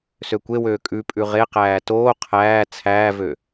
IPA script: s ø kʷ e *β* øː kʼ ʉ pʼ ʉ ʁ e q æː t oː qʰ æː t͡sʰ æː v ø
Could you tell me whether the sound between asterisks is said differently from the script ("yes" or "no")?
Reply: yes